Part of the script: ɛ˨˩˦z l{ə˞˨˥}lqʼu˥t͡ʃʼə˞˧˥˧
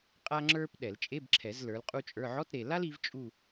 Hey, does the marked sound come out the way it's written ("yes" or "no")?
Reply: yes